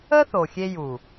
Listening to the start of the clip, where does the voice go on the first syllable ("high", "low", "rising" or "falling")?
high